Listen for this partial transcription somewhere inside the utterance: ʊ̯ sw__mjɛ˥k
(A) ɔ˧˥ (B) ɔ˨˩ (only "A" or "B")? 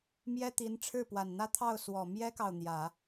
B